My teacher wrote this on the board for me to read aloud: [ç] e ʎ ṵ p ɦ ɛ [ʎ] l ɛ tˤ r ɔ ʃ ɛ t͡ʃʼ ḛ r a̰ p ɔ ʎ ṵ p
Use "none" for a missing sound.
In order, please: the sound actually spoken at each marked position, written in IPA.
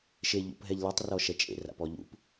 ʃ, ʎ

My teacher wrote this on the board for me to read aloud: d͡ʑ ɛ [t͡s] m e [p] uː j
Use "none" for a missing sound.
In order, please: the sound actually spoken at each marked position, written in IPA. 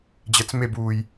t͡s, b

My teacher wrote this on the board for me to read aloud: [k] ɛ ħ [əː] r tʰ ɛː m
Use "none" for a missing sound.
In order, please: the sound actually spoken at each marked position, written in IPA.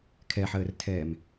kʰ, əː

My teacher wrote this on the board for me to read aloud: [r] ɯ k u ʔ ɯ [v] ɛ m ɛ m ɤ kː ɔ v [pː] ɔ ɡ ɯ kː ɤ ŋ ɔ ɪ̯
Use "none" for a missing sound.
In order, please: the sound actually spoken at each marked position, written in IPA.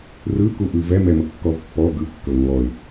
r, v, pː

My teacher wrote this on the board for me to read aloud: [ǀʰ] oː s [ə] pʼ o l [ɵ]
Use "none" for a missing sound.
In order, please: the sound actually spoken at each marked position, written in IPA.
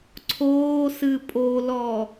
ǀʰ, ɨ, ɔ

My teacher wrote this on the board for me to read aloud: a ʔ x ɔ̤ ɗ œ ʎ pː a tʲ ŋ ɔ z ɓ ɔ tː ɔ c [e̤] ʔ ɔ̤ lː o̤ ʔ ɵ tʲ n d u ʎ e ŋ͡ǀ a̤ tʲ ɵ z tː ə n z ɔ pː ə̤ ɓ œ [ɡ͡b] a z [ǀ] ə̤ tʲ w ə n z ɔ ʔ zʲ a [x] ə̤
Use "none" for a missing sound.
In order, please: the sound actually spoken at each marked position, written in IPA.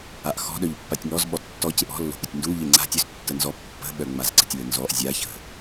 e, ŋ͡m, ǀ, ç

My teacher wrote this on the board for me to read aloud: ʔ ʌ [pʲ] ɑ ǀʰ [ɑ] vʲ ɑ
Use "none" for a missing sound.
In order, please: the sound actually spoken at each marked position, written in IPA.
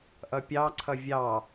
pʲ, ʌ

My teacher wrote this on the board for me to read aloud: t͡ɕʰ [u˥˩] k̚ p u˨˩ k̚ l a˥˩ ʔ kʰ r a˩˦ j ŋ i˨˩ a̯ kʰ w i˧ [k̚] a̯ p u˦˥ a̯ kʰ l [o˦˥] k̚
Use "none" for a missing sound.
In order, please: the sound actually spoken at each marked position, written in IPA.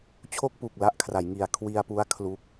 o˥˩, none, u˦˥

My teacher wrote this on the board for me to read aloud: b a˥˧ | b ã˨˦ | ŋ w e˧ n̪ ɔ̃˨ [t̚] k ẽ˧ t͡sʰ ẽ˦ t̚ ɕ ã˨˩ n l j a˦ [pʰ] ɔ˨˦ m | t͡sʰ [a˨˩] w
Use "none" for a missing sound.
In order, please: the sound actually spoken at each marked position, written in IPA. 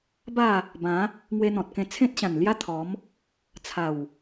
t̚, t̪ʰ, a˨˩

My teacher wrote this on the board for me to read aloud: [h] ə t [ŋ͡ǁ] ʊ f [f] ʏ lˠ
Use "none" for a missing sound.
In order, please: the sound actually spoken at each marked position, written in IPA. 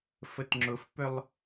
f, ŋ͡ǁ, p

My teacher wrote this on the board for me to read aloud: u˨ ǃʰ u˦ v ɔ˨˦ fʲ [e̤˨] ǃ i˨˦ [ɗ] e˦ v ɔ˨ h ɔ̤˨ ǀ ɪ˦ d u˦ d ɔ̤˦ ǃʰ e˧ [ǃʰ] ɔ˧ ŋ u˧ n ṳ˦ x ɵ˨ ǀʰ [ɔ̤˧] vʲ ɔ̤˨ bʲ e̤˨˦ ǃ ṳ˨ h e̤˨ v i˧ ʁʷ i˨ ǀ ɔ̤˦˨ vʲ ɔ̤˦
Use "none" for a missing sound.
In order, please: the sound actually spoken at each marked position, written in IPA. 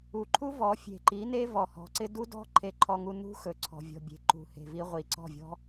e̤˨, n, ǃʰ, ɔ̤˨

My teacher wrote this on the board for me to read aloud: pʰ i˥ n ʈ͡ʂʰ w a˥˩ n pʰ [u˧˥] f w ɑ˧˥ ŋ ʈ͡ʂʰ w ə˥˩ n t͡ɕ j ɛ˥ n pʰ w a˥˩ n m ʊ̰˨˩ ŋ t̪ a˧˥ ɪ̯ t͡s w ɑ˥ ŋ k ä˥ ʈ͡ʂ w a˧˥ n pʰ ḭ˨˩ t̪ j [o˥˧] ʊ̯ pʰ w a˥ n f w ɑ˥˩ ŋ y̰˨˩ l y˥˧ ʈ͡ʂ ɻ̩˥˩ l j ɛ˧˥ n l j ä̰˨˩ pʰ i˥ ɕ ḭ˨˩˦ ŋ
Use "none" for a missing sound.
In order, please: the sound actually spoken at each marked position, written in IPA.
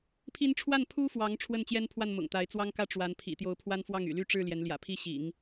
u˥, o˧˥

